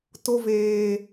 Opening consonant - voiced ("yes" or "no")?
no